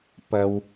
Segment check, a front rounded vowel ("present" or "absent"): absent